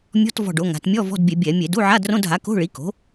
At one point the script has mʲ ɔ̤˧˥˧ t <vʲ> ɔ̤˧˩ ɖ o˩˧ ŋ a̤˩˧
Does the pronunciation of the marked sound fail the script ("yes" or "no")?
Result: yes